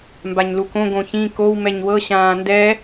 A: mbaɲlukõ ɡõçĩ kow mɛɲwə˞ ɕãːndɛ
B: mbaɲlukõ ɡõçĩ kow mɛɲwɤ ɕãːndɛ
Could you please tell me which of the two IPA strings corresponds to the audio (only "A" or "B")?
B